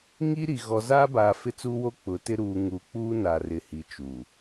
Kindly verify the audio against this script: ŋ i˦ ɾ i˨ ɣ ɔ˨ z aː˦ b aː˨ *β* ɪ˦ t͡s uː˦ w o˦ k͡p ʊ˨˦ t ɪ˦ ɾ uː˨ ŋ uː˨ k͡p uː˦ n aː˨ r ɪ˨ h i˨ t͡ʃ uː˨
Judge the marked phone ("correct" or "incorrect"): incorrect